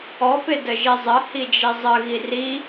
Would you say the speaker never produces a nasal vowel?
yes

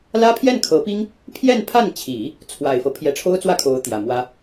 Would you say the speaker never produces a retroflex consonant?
no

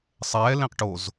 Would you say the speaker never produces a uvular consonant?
no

